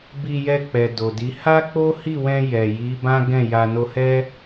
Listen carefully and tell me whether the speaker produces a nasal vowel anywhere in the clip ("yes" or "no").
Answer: yes